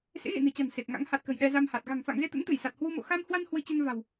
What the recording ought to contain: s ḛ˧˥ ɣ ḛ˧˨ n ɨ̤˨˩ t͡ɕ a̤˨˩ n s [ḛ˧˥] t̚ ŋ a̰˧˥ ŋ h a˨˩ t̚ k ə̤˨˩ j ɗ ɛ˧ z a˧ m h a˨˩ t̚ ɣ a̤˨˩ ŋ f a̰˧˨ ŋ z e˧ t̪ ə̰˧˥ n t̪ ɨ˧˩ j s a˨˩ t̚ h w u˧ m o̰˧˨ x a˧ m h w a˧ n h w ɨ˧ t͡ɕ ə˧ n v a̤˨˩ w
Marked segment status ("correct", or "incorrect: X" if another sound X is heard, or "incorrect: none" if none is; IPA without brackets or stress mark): incorrect: e˨˩